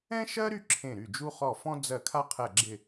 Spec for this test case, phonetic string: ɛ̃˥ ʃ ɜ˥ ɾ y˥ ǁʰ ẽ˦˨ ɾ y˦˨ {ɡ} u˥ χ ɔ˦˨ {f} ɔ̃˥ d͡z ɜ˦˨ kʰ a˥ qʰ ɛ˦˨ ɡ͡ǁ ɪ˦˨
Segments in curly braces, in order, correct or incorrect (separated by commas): incorrect, correct